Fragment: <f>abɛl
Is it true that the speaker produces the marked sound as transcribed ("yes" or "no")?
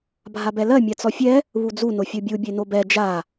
no